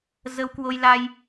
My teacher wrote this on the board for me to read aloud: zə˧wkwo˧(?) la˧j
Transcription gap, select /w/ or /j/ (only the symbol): j